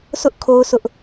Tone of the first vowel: high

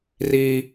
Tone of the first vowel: high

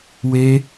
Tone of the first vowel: high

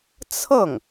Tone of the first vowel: falling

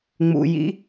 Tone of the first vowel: low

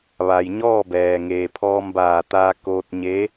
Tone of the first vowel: low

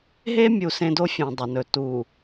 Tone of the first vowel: high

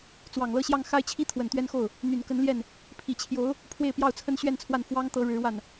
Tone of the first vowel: low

